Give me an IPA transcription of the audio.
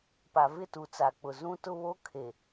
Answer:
pa˨vɪ˦˨tu˨ t͡sa˨k͡pʊ˨ zũ˦tʊ˦βo˦ kʰe˨

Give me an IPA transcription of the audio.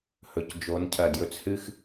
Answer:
hɵ˨cd͡ʒo˨˦ncʰɐ˨ djɵ˧t͡shɨ˦x

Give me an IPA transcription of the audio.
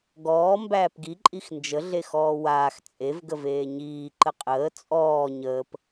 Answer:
ɡɔː mbæːpɡi ǃʼixnd͡ʒə ɮexɔːwaːx t͡sʼev ɡəveːɲiː ǃəqʼəː t͡sʼɔː ɲəːp

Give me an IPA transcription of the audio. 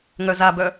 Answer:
ŋœzabœ

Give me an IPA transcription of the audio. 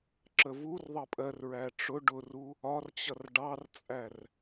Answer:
ǁəvur ðˤʌpʼɜr ɹæʈ͡ʂʊ ɖʊru | ɒrt͡ɕʌr ɖɑrt͡sʼær

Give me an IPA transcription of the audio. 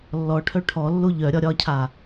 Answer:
lːɔʈʰœ ʈʰɔlːo ʎœ ɾʲɒɾʲɒcʰa

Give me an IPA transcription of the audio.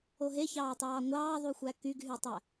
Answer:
oɦeçɑːtˤɑː ŋʷɑːðˤuxʷæ kyɡɦytˤæ

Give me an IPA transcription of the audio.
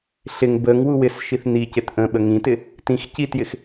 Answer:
ɬɪŋ bəŋ wuwɪsʃiθ nicɪt ʔə̃ɓə ŋĩtɪ | tĩx citjɪx

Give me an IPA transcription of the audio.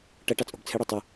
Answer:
ʈɐ ʈɑt͡sʼo̤bt͡sʰɘɽo tˤu

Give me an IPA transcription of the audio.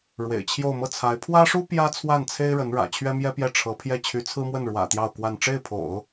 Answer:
ɻwḛ˨˩ɪ̯t͡ɕʰjo˥˧ʊ̯ mɤ˥˩t͡sʰa˧˥ɪ̯ pʰwä˥ʂu˥ pjä˥ t͡sʰwa˥˩nt͡sʰe˥ɪ̯ ɻə˧˥nɻä̰˨˩ t͡ɕʰɥɛ˥mjɛ˥pjɛ˥˩ ʈ͡ʂʰɤ˧˥ pʰjɛ˥˩ t͡ɕʰy˧˥t͡sʰɹ̩˥mwə˥˩n ɻwä̰˨˩ t̪jɑ˥˧ʊ̯kwa˥˧n ʈ͡ʂe˥˩ɪ̯pʰo̰˨˩˦ʊ̯

